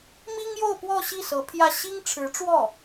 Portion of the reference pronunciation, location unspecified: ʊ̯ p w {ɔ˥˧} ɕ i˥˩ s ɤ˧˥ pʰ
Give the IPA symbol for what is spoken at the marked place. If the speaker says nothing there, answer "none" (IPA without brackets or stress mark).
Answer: ɔ˥˧